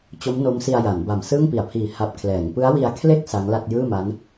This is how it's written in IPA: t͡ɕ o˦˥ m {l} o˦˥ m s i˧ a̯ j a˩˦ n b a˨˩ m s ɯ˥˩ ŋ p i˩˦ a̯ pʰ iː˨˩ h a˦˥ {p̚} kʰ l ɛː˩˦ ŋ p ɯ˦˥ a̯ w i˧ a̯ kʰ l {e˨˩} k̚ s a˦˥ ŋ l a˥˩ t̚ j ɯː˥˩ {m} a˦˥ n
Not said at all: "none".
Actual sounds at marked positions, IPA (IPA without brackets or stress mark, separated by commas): n, p̚, e˥˩, m